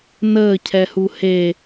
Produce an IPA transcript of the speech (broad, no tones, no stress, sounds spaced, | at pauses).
n əː cʰ ɛ h u h e